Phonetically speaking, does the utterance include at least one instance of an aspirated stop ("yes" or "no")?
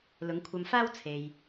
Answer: yes